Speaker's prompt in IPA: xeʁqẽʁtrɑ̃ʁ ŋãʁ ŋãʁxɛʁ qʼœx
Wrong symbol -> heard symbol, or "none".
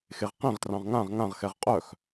none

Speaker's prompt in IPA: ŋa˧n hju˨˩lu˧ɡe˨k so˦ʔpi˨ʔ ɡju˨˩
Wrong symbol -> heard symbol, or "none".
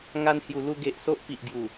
k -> ʔ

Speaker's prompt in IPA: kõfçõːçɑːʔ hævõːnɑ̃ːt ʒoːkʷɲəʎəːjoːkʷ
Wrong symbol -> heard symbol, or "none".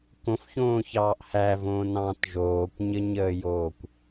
ʎ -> ɲ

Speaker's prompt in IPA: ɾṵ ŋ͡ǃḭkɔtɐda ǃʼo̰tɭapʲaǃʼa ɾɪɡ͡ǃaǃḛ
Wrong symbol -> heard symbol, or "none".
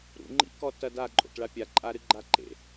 ɪ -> ɨ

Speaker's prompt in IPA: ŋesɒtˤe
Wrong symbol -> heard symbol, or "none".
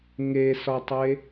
none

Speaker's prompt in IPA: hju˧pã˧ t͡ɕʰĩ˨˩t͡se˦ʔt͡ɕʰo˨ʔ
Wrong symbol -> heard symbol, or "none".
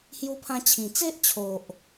p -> pʰ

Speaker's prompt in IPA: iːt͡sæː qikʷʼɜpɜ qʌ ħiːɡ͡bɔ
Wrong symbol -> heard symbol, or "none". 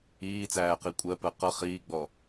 ħ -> χ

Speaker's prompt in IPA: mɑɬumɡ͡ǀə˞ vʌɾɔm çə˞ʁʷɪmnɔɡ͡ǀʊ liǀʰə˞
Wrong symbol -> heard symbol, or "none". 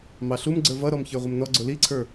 none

